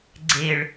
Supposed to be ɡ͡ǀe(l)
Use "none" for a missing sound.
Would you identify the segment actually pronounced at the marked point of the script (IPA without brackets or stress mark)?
ɭ